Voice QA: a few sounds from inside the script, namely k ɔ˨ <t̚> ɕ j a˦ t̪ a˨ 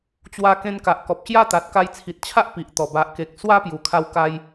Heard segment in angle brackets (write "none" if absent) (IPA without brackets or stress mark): p̚